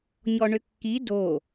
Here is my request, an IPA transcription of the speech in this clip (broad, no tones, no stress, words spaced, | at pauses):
ɲɔɳʏkːi do